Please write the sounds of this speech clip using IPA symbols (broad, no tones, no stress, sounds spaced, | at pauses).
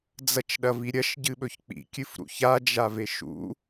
d͡z ɐ t͡ʃ ɗ ɐ v i ɾʲ ɐ ʃ ɟ ɨ ɓ ɵ ç k͡p ḭ kʲ ɨ f ɾ ṵ ç a d͡ʒ a v e ʃ ṵ